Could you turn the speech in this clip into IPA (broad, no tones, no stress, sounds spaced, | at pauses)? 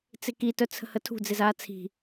t͡s ɪ k i t œ t͡sʰ ə̤ h ə tʰ ṳ d͡z ɪ z aː t͡sʰ i̤